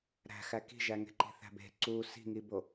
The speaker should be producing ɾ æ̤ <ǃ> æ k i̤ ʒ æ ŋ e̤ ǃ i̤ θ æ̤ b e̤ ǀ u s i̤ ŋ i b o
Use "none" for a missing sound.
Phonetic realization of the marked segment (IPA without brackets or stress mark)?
x